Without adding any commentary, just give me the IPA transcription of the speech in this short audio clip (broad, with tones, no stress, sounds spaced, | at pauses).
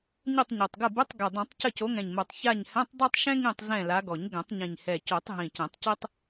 ɲ ɘ˦˨ tˤ ɲ o˨˩ tˤ ɡ ə˦˨ b ɘ˧˥˧ tˤ ɡ ɛ˨˩ dˤ ĩ˨˩˦ tˤ c ə˦˨ c o˨˦ ŋ ɛ̃˨˩ ɲ m o˨˩ tˤ ç a˦˨ ɲ h ɛ̃˧˥˧ tˤ dˤ ɜ˥ tˤ ʃ ɛ̃˥ ŋ ĩ˦˨ tˤ z ɛ̃˦˨ l a˨˦ ɡ ɔ˨˩˦ ɲ ɡ ɛ̃˨˩˦ tˤ ɲ ĩ˨˩ ɲ h ɛ˨˩ c o˨˩˦ tˤ ɦ ĩ˨˩ c ɛ̃˨˩˦ tˤ c ɛ˥ tˤ